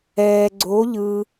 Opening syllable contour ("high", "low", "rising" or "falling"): low